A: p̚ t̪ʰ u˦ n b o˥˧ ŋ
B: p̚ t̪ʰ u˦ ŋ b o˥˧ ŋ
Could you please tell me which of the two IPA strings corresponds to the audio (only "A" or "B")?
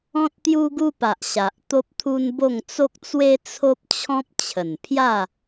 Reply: A